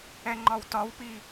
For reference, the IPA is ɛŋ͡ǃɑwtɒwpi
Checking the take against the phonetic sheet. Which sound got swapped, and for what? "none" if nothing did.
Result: ɑ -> ɒ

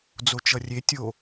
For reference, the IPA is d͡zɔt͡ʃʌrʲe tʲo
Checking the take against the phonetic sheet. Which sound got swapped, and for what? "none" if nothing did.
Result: ɔ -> o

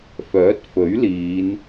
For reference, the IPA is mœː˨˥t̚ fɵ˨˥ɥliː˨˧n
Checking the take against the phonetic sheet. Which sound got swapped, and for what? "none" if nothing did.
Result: m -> f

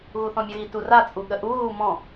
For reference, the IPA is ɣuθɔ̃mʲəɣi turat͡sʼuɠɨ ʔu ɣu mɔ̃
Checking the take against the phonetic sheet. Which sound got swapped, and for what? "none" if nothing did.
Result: ɨ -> ə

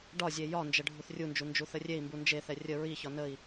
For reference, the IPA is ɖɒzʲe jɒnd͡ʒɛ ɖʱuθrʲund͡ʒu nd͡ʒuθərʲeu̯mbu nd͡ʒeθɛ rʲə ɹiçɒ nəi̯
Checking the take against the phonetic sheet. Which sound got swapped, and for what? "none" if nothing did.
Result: u̯ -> i̯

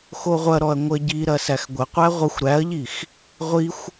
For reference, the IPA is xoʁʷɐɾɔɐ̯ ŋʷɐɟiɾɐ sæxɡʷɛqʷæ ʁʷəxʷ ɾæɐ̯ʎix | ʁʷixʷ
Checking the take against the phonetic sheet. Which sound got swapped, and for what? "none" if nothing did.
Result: ɛ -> ə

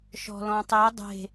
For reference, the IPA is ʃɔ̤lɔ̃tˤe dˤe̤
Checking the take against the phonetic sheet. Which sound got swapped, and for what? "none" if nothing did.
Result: none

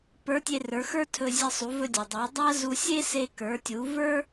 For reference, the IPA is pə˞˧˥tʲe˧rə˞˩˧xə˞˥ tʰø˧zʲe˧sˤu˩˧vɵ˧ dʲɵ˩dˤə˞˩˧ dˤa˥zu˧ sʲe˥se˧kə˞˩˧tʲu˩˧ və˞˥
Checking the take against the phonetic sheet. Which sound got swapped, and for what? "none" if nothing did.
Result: ø˧ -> ɵ˧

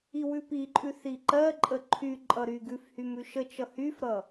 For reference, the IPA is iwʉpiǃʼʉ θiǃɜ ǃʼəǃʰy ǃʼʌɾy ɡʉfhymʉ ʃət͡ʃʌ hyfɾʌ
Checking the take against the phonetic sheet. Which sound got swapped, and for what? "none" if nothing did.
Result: none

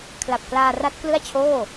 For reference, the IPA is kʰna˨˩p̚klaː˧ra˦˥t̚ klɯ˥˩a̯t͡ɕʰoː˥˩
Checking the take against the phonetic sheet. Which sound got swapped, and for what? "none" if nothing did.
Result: n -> l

